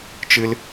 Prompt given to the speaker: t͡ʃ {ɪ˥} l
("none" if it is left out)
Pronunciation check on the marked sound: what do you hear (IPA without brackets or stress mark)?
ɨ˥